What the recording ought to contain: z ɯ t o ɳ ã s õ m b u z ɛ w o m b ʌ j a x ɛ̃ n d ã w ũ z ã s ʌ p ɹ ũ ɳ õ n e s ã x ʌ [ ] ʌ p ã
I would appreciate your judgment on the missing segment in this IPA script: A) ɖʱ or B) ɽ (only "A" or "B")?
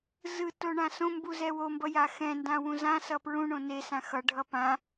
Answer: A